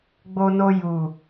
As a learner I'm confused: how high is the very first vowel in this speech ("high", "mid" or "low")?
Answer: mid